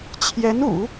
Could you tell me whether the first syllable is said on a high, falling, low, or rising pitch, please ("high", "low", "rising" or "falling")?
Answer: rising